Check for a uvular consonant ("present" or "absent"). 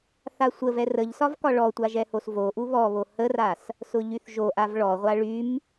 present